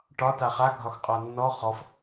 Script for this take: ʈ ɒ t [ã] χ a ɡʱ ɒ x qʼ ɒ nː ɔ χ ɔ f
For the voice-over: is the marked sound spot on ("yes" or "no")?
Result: no